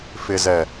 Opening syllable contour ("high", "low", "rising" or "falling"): low